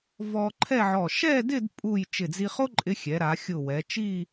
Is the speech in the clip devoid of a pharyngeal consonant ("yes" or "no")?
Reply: no